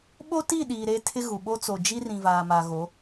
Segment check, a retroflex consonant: absent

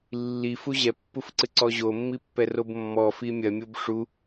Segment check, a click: present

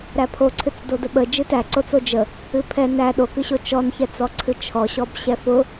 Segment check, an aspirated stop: present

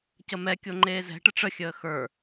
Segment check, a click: present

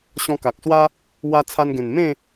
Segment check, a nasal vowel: present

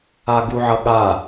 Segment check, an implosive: present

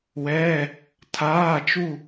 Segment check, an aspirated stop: present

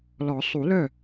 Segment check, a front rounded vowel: present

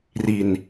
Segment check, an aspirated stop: absent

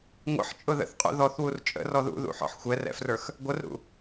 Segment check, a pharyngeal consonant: present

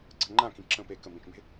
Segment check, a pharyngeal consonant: absent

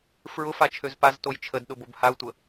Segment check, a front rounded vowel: present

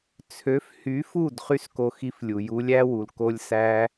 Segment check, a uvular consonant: present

